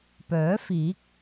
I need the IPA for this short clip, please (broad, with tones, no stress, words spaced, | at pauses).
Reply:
pœː˨˥fiː˨˥k̚